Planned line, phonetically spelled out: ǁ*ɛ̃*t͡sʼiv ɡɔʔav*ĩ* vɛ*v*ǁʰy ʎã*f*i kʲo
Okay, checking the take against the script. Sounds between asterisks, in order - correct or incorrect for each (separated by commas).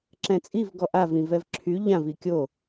correct, correct, correct, incorrect